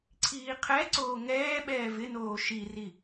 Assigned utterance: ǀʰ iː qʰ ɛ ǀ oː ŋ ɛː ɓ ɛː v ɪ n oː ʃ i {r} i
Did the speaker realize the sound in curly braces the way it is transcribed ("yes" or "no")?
yes